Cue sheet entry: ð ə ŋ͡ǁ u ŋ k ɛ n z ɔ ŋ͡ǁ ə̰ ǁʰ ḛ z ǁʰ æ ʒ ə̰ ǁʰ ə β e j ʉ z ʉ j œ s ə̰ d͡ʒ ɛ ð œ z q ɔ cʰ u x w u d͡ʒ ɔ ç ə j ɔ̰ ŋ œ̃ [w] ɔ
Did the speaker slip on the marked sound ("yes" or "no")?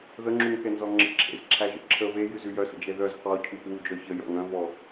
yes